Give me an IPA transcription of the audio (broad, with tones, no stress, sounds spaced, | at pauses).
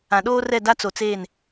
ã˨ ɗ oː˦ r ɛ˦˨ d a˦ t͡s o˨ t͡s eː˦˨ n